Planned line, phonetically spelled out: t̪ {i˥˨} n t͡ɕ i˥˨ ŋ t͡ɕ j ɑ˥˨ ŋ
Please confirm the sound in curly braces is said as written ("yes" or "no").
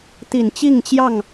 no